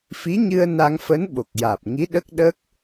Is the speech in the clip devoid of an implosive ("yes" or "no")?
no